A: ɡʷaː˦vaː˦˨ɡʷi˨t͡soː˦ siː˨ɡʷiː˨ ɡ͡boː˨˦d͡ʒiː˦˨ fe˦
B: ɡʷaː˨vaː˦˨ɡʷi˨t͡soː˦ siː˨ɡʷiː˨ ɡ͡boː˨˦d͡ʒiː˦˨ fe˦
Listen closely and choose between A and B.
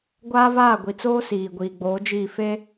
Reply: A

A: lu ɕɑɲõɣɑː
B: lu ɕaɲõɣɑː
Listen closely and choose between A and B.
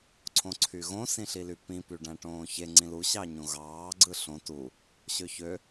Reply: A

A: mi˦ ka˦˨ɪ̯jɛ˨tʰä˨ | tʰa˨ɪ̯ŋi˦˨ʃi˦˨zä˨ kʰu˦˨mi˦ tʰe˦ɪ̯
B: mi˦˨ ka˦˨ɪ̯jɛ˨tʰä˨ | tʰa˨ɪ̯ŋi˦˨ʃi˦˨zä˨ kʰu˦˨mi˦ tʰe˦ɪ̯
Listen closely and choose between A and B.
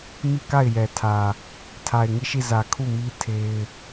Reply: B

